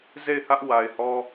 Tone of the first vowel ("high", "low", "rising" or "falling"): falling